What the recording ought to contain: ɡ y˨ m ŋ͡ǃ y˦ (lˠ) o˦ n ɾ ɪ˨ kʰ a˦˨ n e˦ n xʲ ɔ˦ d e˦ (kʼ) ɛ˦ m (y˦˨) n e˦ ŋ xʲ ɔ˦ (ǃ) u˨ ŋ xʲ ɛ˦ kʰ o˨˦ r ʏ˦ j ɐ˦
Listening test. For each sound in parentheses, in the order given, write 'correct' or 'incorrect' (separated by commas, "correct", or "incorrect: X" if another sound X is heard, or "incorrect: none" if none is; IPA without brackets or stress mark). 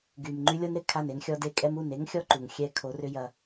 incorrect: lʲ, correct, incorrect: u˦˨, correct